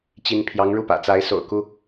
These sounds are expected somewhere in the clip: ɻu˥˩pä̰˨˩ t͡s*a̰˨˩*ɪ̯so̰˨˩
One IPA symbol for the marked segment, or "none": a˧˥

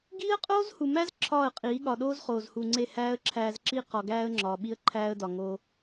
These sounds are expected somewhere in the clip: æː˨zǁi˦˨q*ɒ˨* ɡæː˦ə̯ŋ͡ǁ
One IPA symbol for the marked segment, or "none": ɒ˨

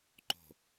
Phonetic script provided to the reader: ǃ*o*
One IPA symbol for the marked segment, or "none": o̤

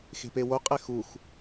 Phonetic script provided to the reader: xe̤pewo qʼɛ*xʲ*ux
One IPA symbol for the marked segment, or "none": x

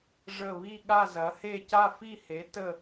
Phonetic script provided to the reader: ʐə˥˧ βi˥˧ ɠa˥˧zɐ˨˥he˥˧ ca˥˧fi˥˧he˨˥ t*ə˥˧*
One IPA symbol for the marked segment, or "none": ə˥˧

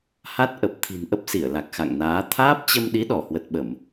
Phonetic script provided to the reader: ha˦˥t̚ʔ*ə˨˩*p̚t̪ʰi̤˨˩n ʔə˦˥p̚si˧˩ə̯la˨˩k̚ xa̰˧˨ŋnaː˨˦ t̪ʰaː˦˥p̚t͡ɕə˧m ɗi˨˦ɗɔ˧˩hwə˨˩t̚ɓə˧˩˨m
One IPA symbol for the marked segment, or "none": ə˨˩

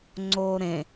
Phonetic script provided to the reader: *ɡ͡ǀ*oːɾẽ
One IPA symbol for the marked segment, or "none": ŋ͡ǀ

